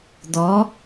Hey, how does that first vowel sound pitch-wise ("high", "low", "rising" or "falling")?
rising